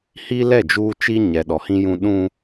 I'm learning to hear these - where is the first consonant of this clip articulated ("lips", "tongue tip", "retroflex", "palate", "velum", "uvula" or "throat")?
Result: throat